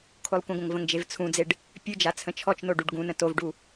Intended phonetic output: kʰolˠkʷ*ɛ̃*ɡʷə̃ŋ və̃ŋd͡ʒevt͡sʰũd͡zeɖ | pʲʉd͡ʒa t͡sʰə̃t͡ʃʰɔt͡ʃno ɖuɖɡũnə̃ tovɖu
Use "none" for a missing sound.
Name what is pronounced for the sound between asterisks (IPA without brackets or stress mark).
ə̃